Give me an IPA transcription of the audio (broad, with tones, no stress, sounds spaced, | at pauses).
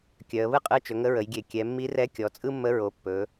kʲ œ˩˧ ə̯ β ɯ˥ qʼ ɯ˧˥ t͡ʃ ɵ˩˧ ŋ ə˧˥ ɹ ə˩˧ j ɡʲ e˧˩˧ kʲ ɛ˩˧ mː i˧˥ r ɛ˧˥ kʲ ɔ˩˧ t͡sʼ ɯ˥ mː ə˧˥ ɹ o˩˧ pː ɵ˩˧